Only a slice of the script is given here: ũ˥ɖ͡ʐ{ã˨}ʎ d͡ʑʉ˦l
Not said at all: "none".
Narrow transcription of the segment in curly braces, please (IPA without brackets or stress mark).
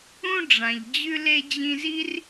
ã˨